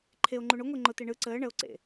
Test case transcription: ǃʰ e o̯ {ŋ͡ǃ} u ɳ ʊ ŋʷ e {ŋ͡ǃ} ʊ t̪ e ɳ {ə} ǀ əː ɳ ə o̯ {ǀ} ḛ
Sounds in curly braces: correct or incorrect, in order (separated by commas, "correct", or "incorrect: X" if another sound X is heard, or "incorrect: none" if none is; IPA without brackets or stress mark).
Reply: correct, correct, incorrect: ɯ, correct